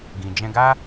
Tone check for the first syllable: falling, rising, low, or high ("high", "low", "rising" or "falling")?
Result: low